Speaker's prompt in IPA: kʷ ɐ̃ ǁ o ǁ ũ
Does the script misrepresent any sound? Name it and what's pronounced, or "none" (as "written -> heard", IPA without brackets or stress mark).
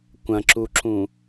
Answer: o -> u